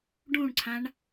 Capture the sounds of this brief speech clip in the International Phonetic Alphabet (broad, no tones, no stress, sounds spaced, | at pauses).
ɖ ũ ɳ ǀʰ ã ɳ